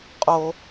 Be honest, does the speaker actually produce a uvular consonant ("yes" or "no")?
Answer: yes